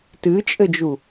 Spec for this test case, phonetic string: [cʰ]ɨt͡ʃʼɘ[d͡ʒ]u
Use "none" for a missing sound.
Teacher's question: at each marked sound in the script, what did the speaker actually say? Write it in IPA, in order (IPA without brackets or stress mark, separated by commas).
t, d͡ʒ